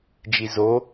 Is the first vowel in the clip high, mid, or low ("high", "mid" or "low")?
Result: high